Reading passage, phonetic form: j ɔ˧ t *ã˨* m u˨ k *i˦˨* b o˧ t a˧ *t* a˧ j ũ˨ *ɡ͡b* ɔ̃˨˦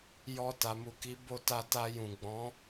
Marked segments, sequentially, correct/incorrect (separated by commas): incorrect, incorrect, correct, correct